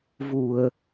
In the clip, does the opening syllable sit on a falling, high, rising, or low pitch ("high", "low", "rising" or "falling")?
low